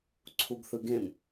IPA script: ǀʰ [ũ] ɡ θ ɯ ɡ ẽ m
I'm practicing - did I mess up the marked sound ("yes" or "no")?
yes